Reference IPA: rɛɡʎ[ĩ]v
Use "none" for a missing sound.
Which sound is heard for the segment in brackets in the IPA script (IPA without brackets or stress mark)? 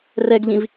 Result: ĩ